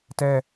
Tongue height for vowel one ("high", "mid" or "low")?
mid